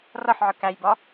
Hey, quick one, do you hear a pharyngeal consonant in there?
yes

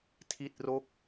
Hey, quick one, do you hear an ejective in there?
no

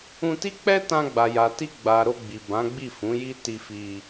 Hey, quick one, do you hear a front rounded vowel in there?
no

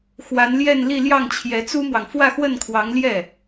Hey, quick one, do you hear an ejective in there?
no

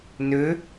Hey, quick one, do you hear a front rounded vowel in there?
yes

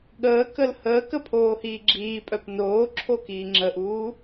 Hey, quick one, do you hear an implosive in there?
yes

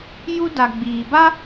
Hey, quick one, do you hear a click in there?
no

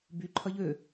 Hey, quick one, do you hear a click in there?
yes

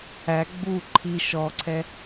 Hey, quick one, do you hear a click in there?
yes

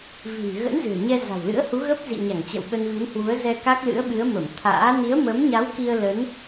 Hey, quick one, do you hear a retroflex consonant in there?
no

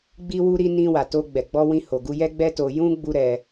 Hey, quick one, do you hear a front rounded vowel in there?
no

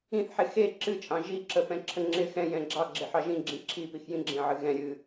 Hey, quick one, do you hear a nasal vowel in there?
yes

